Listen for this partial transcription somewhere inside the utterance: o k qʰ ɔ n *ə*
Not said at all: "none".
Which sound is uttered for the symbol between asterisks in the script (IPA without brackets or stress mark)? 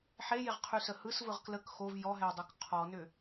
ʏ